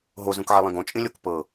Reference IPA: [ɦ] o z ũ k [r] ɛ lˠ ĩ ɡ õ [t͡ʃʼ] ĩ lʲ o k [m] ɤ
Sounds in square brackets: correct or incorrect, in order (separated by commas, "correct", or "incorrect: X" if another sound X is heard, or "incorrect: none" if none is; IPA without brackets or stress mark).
correct, incorrect: ʕ, correct, incorrect: p